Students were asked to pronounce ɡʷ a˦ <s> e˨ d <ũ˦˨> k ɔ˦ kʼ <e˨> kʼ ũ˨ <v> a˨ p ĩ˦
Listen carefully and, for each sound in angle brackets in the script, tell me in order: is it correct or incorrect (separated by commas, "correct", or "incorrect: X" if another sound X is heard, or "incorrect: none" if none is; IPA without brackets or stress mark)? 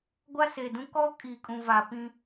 correct, incorrect: ũ˦, incorrect: i˨, correct